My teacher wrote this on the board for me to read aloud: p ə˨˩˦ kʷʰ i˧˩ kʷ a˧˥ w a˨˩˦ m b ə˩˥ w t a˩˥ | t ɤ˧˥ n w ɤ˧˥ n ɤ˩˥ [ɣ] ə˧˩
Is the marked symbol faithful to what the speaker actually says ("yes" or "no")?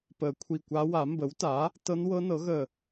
yes